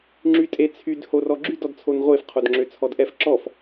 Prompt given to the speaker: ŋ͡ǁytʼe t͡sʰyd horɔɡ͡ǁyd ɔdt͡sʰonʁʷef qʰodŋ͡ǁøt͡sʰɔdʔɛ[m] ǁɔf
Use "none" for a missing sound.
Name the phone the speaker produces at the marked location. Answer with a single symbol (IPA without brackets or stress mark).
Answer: f